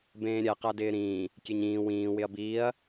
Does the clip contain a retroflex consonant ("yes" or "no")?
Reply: no